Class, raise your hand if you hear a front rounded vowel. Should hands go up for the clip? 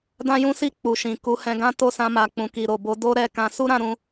no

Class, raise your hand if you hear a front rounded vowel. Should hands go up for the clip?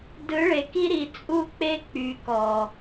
yes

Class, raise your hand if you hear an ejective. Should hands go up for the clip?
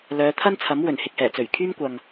no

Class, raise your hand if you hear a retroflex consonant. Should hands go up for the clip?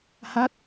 no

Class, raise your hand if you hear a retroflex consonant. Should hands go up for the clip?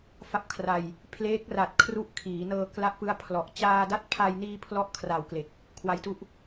no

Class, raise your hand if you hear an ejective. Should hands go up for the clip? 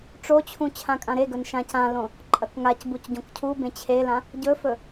yes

